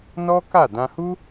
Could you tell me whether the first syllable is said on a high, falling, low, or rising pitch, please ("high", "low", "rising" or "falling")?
high